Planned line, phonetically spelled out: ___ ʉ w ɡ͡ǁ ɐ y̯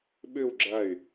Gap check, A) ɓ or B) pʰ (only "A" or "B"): A